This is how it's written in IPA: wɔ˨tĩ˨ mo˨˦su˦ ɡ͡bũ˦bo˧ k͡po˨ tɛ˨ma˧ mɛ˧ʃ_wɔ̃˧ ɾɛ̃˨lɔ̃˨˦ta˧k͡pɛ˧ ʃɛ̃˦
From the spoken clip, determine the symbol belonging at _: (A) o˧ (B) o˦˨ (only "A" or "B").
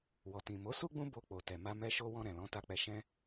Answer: A